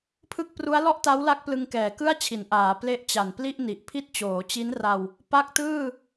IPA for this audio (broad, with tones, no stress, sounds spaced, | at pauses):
pʰ ɯ˥˩ k̚ p r u˦˥ a̯ l ɔ˥˩ ʔ t a˦˥ w l a˦˥ k̚ p l ɯ˧ ŋ k ɛː˨˩ k ɯ˥˩ a̯ t͡ɕʰ i˩˦ n ʔ aː˩˦ p l e˥˩ ʔ t͡ɕ a˨˩ n p l i˥˩ ʔ n i˨˩ ʔ pʰ i˥˩ t̚ t͡ɕ oː˩˦ t͡ɕ i˦˥ n r a˧ w | p a˦˥ k̚ t ɯː˥˩